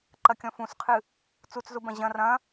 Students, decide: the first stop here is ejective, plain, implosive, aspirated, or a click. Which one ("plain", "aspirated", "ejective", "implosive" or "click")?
click